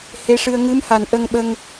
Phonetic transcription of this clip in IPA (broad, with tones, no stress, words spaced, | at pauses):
he˧˥ʂɨ˧ə̯ ŋɨ˧˥mha˨˩n ʔə˧ŋɓə˧ŋ